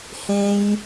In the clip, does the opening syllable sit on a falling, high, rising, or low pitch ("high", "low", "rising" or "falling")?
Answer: high